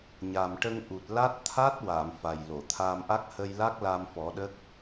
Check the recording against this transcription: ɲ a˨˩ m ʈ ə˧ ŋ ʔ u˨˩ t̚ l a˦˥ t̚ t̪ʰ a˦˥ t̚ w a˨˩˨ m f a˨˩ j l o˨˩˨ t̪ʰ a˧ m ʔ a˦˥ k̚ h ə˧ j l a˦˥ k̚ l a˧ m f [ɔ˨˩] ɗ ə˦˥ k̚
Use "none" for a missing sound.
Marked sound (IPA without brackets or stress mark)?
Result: ɔ˨˩˦